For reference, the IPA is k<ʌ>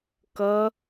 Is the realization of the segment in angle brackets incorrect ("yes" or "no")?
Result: no